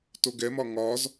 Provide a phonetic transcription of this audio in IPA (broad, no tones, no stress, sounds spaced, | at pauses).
t o ɡ ɛ m ɒ ŋ ɒ z